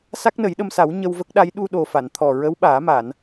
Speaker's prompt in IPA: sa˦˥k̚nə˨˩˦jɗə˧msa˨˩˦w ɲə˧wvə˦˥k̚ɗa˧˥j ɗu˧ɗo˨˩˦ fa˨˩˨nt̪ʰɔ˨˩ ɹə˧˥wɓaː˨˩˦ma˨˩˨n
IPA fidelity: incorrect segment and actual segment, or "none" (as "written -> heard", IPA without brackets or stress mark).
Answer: o˨˩˦ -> o˨˩